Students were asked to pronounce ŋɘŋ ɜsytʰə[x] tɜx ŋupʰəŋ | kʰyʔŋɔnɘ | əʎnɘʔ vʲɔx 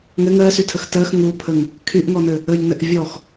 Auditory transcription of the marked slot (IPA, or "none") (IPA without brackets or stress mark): x